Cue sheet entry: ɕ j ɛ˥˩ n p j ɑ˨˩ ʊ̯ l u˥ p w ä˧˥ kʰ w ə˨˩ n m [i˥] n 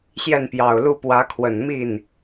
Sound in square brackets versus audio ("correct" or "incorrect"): incorrect